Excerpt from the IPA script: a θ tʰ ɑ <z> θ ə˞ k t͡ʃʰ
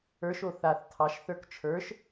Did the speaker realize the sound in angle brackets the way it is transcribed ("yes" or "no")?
no